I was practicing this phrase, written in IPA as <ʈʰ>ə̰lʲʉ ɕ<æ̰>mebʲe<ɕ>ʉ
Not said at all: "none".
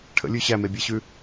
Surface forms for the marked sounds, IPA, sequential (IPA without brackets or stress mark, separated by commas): ʈʰ, æ, ɕ